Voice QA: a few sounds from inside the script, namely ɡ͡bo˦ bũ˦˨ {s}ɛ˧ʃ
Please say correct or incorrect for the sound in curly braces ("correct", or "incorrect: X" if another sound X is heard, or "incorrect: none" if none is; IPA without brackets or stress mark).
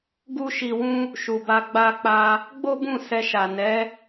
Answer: correct